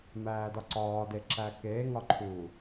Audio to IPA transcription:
m æː d ɒ ǀ ɒː d e ǁ æ k eː ŋ ɒ ǃʰ u

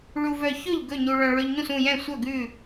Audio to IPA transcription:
ɭ u˧ v œ˧ ç ɵ˥˨ ʎ ɡ ɵ˥˨ ɲ u˧ ɭ œ̃˧ ɭ ø˧ ʎ ɲ ũ˥˨ s ũ˥˨ j ɛ̃˥˨ sʷ œ˥˨ ɡ ʉ˥˨

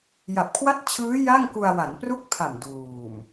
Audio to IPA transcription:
j a˨˩ p̚ kʰ w a˥˩ t̚ t͡ɕʰ ɯː˦˥ j a˥˩ ŋ k u˧ a̯ w a˩˦ n p r u˥˩ k̚ pʰ a˨˩ m d uː˨˩ m

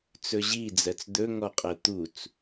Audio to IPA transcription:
t͡s ɵ ʑ i d͡z ɜ t͡s d̪ ɵ ŋ ɔ qʼ ɜ t̪ u t͡s

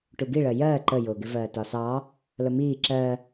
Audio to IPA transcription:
ʈ u ɡ i ɭ ɜ j ɜː ǃ ə j ʊː ɡ ɪ v ɜː t ɒ s ɑ | l ə m iː ǁ ɜ

